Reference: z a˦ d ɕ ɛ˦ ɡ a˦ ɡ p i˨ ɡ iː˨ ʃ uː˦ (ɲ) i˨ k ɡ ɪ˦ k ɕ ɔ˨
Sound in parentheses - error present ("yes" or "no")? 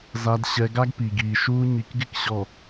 no